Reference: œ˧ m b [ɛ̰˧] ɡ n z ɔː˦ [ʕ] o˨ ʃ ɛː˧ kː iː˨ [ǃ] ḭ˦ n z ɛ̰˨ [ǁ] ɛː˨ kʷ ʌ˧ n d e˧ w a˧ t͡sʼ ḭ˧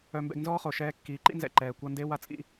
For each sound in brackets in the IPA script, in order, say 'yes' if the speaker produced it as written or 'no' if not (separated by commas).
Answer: yes, no, yes, no